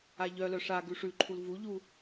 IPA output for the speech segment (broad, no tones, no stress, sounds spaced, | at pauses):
a ʎ œ l œ ʂ a ɡ ʉ ʂ ʉ ǃʰ u l v u ʎ u